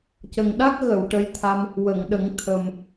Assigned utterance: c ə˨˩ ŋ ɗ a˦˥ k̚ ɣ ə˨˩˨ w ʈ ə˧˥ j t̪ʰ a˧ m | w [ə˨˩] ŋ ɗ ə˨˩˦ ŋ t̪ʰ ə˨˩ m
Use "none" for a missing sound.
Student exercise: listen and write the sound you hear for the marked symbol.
ə˨˩˨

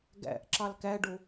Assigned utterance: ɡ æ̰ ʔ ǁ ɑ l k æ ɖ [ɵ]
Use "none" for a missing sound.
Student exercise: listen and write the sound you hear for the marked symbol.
o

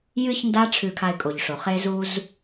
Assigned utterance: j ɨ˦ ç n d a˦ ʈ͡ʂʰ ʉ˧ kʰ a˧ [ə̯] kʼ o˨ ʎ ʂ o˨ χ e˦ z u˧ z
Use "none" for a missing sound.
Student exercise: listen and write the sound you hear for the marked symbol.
ɪ̯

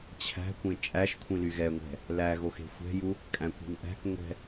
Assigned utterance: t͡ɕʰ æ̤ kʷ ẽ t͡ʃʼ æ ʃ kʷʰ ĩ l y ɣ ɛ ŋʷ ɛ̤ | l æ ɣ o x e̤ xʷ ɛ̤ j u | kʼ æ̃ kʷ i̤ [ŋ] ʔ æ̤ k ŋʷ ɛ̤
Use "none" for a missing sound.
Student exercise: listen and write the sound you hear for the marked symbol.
ŋ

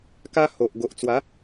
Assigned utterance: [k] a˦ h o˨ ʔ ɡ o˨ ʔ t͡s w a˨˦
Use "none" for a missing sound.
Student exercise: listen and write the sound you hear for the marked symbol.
k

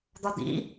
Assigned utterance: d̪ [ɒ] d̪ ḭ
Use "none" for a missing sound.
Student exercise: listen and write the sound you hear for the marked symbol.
ɒ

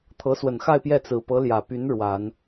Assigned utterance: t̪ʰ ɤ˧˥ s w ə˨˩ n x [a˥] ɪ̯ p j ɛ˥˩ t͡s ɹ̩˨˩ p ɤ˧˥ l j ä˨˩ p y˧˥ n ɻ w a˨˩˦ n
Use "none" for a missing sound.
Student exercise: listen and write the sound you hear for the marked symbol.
a˥˧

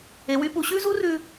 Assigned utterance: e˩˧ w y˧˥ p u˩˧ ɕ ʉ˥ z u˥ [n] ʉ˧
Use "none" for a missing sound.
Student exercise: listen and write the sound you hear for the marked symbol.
r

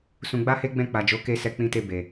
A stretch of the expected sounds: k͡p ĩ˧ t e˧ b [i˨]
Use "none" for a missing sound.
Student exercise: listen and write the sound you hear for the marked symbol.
e˨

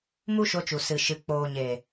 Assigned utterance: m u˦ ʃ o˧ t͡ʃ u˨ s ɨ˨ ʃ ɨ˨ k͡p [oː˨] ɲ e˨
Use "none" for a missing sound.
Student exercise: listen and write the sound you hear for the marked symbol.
oː˨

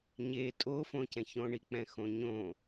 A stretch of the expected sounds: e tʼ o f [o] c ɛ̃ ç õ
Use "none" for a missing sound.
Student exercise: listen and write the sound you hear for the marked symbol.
õ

